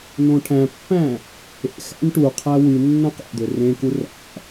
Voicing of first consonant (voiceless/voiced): voiced